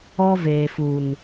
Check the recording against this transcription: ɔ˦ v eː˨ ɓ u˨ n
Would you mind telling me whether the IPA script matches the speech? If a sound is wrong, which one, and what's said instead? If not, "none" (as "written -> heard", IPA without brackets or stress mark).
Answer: ɓ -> f